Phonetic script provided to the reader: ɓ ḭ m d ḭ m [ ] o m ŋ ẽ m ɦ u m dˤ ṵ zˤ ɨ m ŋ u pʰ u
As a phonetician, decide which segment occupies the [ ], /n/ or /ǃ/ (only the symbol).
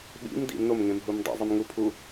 n